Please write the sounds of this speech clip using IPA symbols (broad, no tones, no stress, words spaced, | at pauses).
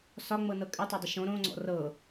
sɒŋ͡mɤnɤ kʼɪtˤadˤɪ ʃõ ɾõŋ͡ǀɔ̰ rɤ